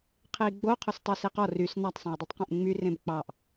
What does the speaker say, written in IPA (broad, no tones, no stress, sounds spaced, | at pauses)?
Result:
qʰ e i̯ ɡ͡b o qʰ o s tˤ e s e q ɔ r y s n ɑ tˤ sˤ ẽ j dˤ y tˤ q ẽ ʔ ŋ͡m y r ẽ b k͡p ɑ ʔ